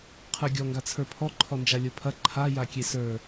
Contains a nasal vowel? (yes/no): no